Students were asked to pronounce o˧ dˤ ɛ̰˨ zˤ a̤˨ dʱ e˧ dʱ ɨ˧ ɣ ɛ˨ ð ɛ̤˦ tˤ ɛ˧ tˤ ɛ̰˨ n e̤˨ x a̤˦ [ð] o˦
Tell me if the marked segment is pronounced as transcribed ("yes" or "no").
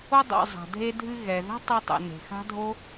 no